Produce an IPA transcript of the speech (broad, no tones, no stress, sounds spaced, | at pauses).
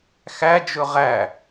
x æ d͡ʒ ɵ ʁ æ